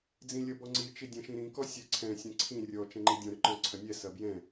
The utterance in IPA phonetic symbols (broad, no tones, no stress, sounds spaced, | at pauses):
d͡z ĩ lʲ ɐ b ɔ ŋ͡ǀ i t͡ʃ i dʲ ɐ̃ ʃ ĩ ɾ ĩ k ɔ sʲ ɜ ǀʰ ɛ̃ sʲ ɐ̃ ǀʰ ĩ rʲ ɔ t͡ʃ ɛ̃ ŋ͡ǃ i dʲ ɔ̃ ɾ ʏ ǃ ɔ̃ ǀʰ ɐ nʲ ɛ s ɐ b j ɛ̃